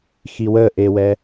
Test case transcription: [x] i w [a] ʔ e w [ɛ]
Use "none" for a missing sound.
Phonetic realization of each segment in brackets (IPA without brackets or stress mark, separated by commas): x, ə, ɛ